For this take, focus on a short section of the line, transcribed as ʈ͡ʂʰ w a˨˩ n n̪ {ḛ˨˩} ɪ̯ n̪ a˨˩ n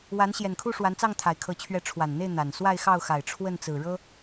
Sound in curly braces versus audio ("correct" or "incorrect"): incorrect